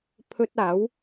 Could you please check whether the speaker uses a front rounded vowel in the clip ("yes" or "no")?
no